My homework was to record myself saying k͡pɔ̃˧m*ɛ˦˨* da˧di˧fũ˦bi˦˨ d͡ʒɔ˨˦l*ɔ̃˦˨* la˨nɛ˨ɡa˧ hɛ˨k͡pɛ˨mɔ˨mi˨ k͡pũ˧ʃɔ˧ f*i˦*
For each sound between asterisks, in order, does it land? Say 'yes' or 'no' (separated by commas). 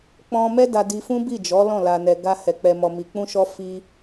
no, yes, no